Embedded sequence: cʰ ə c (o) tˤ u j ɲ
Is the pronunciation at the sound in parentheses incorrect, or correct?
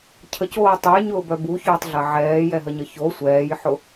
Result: incorrect